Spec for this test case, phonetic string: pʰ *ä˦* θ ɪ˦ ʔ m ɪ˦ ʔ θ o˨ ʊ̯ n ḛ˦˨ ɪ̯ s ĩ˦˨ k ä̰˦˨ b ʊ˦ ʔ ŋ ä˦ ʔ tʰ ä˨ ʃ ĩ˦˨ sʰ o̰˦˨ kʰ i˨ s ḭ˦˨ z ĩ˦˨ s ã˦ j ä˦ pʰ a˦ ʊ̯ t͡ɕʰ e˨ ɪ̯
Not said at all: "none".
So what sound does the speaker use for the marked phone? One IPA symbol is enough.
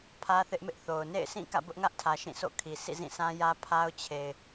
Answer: ä˦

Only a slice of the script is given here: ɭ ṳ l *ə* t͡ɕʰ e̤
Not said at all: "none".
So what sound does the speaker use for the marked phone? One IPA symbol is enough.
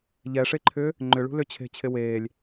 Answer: ʏ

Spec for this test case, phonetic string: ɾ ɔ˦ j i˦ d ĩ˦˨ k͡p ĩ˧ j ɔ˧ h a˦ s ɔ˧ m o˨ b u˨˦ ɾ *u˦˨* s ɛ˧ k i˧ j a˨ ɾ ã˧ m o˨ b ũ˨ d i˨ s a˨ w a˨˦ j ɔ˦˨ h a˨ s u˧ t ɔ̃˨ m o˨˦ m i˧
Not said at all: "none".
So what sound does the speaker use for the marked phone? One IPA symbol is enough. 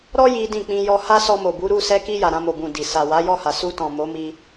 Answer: u˦˨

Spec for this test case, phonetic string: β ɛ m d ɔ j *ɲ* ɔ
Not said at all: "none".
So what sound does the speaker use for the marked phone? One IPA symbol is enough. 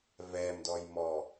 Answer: m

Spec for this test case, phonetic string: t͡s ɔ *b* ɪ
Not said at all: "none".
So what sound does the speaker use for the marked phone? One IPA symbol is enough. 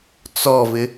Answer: v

